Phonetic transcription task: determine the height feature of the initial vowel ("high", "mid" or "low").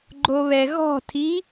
mid